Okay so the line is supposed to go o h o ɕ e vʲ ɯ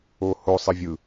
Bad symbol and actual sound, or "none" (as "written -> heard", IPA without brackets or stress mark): ɕ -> sˤ